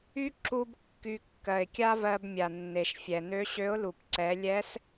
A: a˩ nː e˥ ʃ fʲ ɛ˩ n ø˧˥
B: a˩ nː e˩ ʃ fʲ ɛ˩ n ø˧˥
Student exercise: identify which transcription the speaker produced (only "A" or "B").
B